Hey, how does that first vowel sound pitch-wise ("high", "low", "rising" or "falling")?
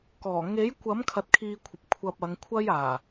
low